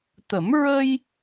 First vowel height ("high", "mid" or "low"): mid